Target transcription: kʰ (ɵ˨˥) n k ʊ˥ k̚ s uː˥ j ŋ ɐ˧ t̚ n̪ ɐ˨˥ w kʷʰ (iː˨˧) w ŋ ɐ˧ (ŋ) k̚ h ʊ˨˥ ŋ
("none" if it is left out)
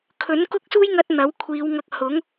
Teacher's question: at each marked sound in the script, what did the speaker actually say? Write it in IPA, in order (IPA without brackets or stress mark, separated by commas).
ɵ˨˥, iː˨˧, none